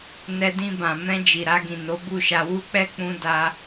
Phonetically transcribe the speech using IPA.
n ɛ˧ d ĩ˧ b ã˨ m ɛ̃˧ d͡ʒ i˨ ɾ a˧ ɡ ĩ˨ n o˨˦ b u˦˨ ʃ a˧ w u˦ k͡p ɛ˦ k͡p ũ˦ d a˦

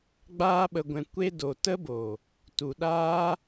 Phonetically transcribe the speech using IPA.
ɡ͡b aː˧ ɓ ə˨ ɡʷ ɛ̃˨ kʷ e˧ d o˨ t ə˦ b o˨ | t u˨ ɗ aː˦

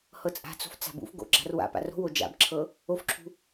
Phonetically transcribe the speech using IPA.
h ɤ t͡sʼ a̤ t͡s o̤ f t͡s a̤ b ṵ f ɡ o̰ ɡ͡ǁ a̤ r w a̰ p a̰ r o̤ w o d͡ʒ a̰ b ǁʰ ɤ | o f ǁʰ ṳ

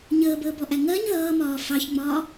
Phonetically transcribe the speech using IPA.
ɲ əː b əː b ɔ ʔ æ ŋ ɜ ɲ ð ʌː m ɒː f ɑ ç ŋ͡m ɒː

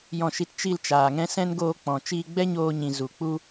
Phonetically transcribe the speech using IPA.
j ɔ̃˧ ʃ i˧ t t͡ʃ i˧ l t͡ʃ aː˨ ŋ ɛ̃˧ s ɛ̃˦ n ɡ oː˧ k͡p ɔ̃˨ t͡ʃ iː˧ ɡ͡b ɛ˦ ɲ oː˧ ɲ ĩ˨ z u˨ k͡p u˦

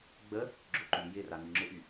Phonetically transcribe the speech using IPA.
ɡ͡b ə | ɡ͡ǁ ʊ ǃ y j ɪ r a n y ŋ͡ǁ ɪ ʔ y

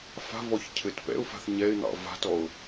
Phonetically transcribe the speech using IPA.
f a̤ v ɔ ç cʰ ɘ t p ɛ̰ ʊ̯ f a̤ θ ɲ ɛ ɪ̯ n̪ ɑ̰ v a̤ t ɔ ʊ̯

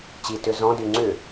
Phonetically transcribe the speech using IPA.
t͡ɕ i t ʏ z ɔ̃ d y ŋ͡ǀ ʏ

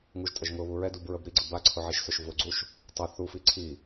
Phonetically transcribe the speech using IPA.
ŋ u ʒ tʼ ə ʒ ŋ ʊ β u ɹ ɛ d u b ɹ ə b ɾ i ɡ͡ǀ ə b a ǀʰ ʊ ʕ i ʃ s ʊ ʃ v ʊ ɡ͡ǀ u ʃ | tˤ ʊ θ u f i ǀʰ i

